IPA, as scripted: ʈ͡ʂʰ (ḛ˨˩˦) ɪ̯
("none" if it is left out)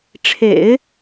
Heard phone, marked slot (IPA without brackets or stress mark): ḛ˨˩˦